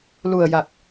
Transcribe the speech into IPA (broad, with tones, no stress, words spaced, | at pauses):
lu˨˩ə̯ja˨˩k̚